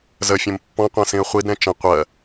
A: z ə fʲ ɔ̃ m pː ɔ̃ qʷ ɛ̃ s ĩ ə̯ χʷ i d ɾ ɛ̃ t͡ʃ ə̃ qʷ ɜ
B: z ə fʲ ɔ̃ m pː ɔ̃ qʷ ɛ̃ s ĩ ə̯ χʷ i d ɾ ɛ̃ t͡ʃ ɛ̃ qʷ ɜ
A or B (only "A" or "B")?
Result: A